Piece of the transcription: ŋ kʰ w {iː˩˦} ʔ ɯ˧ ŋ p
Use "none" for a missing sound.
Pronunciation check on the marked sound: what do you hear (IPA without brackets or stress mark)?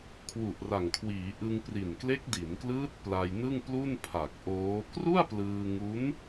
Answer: iː˩˦